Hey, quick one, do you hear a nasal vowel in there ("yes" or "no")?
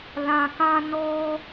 yes